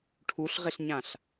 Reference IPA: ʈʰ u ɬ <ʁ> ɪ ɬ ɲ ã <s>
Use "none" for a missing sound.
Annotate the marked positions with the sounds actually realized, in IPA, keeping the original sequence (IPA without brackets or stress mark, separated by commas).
ʁ, ɬ